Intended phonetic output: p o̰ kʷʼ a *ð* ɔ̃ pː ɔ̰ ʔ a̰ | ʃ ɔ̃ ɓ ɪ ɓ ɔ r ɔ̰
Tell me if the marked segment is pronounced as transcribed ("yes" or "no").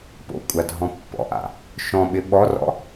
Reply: no